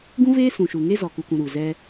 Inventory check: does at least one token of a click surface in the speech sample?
no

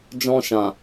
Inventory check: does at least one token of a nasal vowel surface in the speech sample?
yes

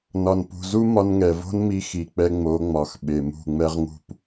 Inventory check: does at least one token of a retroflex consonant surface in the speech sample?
no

